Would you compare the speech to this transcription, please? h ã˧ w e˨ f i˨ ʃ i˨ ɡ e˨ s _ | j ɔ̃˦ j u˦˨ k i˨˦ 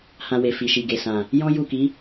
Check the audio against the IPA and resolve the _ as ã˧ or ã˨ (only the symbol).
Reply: ã˨